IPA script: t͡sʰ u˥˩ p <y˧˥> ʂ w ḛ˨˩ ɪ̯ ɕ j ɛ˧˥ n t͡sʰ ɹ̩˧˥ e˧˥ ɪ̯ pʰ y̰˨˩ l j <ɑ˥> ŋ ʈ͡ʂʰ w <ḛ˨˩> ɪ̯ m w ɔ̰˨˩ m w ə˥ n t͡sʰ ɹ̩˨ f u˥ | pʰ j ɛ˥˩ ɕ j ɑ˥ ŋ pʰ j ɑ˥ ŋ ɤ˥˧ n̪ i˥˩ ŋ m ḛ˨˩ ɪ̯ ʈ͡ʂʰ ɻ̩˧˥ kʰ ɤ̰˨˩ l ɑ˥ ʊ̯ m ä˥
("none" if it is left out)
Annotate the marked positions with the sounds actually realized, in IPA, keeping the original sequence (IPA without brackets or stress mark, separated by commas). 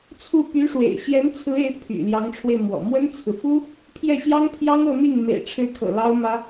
y˧˥, ɑ˧˥, e˧